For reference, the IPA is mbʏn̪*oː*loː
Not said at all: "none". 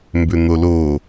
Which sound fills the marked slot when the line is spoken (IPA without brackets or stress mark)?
o